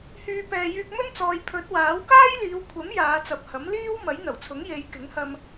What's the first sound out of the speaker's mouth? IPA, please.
h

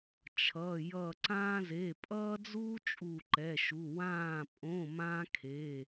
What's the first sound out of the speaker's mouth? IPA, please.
t͡ʃʰ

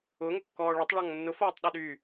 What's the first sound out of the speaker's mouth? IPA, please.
ʊ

